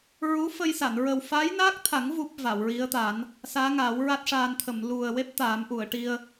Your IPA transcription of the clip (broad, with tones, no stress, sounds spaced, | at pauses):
ɹ u˧˥ f ə˧ j s a˨˩˨ n ɹ ə˨˩ w f a˧˥ j n a˦˥ k̚ t̪ʰ a˨˩˦ ŋ v u˦˥ p̚ v a˨˩˨ w ɹ i˧˥ ə̯ t̪ a˨˩˦ n | s aː˧˥ ŋ a˨˩˦ w ɹ a˦˥ t̚ ʂ aː˧ n t̪ʰ ə˨˩˨ m l u˨˩ ə̯ w e˦˥ p̚ t̪ aː˨˩˦ m ʔ u˨˩˨ ə̯ ʈ i˧ ə̯